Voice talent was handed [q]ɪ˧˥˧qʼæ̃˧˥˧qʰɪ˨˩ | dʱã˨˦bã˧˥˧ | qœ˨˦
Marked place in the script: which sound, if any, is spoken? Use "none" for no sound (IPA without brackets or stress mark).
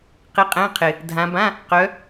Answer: q